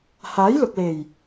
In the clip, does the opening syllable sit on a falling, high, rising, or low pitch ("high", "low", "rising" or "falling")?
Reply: rising